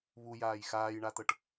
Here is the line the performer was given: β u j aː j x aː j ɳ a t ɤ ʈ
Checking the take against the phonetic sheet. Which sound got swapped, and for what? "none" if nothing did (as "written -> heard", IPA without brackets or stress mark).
none